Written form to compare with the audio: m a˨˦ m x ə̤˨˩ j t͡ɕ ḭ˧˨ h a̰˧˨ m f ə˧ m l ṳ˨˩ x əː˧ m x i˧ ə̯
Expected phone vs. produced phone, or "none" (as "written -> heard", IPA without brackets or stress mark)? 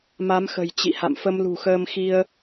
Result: none